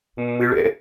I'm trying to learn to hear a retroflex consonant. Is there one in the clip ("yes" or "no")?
yes